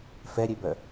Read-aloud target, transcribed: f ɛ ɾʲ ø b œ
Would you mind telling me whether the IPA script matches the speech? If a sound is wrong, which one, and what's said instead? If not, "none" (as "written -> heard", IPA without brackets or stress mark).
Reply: none